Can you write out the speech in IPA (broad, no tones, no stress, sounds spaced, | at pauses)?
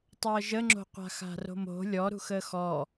tˤ əː ʒ ə ŋ͡ǁ o̤ qʷ a̤ x a̤ r o̤ m o̤ lʲ ɔ ɾ ṳ x əː x ɔ